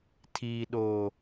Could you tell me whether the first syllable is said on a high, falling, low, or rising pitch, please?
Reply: low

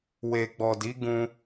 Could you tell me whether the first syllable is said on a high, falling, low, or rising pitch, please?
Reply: low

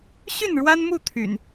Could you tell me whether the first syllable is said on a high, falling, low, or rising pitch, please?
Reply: falling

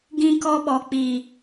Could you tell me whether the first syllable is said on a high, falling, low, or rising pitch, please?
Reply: high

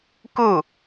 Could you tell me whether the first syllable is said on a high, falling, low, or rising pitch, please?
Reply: falling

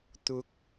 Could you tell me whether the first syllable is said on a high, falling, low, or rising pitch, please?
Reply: rising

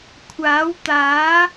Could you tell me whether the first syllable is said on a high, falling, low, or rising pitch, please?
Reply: rising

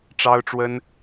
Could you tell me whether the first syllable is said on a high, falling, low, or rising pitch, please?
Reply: high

